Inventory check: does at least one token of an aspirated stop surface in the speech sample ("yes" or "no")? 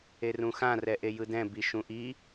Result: no